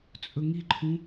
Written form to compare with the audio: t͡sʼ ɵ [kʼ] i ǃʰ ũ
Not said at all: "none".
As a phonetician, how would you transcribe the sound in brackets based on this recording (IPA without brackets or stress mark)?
ŋ